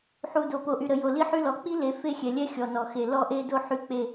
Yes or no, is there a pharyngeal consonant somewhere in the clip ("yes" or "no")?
yes